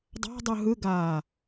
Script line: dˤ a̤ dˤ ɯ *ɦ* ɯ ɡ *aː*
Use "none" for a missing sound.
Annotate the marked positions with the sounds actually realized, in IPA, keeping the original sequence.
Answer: ɦ, aː

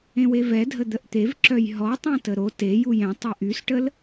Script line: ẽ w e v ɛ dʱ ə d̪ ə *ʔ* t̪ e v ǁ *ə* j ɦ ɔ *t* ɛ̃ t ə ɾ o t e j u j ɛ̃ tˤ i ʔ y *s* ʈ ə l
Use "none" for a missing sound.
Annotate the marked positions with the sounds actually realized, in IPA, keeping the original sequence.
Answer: ʔ, œ, tˤ, s

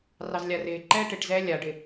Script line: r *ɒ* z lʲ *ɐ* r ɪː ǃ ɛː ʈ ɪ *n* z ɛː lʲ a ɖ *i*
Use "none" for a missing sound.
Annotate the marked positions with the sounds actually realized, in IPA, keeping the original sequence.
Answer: ɑ, a, ʈ, ɪ

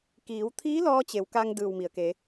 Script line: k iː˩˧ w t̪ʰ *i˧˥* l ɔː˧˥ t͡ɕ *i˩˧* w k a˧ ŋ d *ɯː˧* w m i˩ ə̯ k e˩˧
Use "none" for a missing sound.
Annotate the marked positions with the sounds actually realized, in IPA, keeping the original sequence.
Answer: iː˧˥, e˩˧, ɯː˧˩

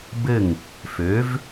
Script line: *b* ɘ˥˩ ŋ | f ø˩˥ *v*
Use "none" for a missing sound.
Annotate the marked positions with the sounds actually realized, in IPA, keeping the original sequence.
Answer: b, v

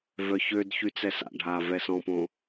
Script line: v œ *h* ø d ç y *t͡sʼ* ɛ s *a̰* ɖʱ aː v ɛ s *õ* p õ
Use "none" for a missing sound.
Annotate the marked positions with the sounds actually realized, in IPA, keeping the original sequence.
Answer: ç, t͡s, a̰, ɔ̃

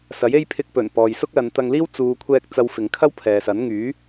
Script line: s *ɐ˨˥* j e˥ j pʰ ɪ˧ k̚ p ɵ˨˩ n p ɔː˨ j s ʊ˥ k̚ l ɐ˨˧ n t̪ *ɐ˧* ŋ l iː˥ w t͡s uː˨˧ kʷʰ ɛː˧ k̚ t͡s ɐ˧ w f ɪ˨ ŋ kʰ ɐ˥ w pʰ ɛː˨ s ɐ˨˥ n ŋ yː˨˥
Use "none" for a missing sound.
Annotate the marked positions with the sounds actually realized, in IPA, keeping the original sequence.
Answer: ɐ˨˥, ɐ˧

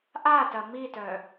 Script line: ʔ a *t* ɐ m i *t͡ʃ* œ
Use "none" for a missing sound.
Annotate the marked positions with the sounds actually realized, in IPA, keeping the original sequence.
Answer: t, t

